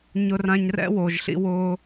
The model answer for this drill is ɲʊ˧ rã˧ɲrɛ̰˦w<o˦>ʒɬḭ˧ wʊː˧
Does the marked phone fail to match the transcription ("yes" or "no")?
yes